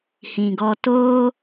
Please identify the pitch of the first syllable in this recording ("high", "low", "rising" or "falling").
low